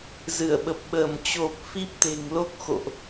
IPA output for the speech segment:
zɨ˧˩ə̯ɓə˨˩p̚ɓəː˧˩m t͡ɕo˨˩p̚ fi˦˥p̚t̪e̤˨˩ŋlo˦˥k̚ xo̰˧˨ʔ

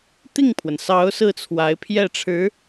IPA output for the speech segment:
t̪i˥˩ŋpʰwə˩nsɑ˧˥ʊ̯ sɹ̩˥˩t͡sʰwa˧˥ɪ̯pʰjɛ˥˩ʈ͡ʂʰɻ̩˧˥

